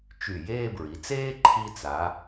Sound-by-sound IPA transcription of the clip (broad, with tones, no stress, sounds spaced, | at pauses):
t͡ʃ y˧˩ j eː˥˧ b ɹ i˩˧ t͡s eː˥ ǃʰ i˧ t͡s a˩˧